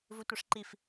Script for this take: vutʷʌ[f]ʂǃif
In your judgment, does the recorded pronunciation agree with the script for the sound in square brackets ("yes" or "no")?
no